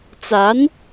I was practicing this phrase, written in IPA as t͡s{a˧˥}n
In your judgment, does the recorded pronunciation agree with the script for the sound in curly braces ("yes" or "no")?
yes